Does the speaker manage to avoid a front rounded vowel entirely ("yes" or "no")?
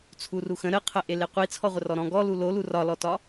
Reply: yes